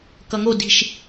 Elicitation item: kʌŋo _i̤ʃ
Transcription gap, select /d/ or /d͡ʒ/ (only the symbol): d